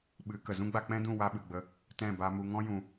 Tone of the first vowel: rising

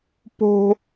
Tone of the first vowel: high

